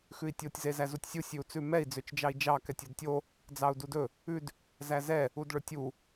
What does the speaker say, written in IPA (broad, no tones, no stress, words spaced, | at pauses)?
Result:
xʉi̯tʲotʲ zezæzutʲsʲu sʲʉu̯t͡sʉmɛi̯ d͡zøt͡ʃd͡ʒɑi̯d͡ʒɑ kɛtʲodtʲo | d͡zɑu̯dudɵ | ʉd | zæzɛ | udɭɵtʲu